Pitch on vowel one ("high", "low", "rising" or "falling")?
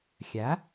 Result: rising